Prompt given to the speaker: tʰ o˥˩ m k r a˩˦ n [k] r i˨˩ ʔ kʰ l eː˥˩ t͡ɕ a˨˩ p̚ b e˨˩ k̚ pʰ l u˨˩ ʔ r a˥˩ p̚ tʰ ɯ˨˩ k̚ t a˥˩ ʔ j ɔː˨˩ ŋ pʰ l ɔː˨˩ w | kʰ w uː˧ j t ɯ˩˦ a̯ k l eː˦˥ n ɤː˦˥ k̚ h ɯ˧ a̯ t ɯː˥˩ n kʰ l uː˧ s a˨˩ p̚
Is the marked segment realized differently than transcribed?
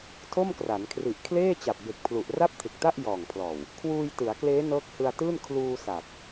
yes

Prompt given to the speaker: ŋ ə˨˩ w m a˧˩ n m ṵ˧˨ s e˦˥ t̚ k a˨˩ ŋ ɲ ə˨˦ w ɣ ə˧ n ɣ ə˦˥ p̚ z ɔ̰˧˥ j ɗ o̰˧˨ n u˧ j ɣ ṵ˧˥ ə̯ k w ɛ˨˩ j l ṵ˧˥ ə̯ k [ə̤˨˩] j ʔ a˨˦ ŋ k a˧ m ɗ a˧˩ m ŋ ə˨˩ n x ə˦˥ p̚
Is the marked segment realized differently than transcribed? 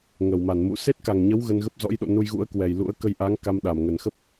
yes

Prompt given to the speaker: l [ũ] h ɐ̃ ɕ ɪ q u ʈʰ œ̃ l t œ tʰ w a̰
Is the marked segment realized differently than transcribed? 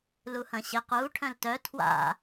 yes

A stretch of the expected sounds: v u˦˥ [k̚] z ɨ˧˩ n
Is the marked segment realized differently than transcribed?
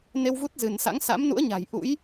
yes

